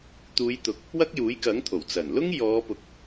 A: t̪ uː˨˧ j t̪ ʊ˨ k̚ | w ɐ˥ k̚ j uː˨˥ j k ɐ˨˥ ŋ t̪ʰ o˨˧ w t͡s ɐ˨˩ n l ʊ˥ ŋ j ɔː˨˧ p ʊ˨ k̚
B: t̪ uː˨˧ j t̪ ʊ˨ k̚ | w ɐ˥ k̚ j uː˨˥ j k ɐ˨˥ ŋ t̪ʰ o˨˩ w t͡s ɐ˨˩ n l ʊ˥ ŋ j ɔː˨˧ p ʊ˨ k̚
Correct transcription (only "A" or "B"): B